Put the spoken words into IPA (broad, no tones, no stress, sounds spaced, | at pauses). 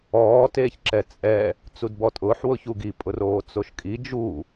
ɔː t eː ç ǁ ɛ t͡sʼ ɛ | t͡s u d b ɔ tʼ ʊː ħ w ʊ ç u ɡ i pʼ ʊ r oː t͡s o ʃ kʼ i d͡ʒ u